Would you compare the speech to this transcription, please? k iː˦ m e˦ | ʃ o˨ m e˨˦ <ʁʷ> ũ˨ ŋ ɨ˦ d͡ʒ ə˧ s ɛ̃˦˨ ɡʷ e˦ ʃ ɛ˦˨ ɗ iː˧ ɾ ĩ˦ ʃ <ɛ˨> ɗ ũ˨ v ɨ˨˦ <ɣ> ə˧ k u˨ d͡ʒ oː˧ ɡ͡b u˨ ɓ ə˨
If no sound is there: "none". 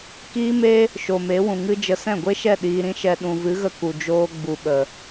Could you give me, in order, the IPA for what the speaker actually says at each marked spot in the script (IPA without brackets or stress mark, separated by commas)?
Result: w, ɛ˧, ɣ